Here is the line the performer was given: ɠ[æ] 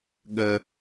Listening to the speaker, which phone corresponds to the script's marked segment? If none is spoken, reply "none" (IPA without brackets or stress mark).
ə